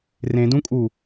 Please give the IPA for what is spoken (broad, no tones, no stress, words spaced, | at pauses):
rẽdũkʼu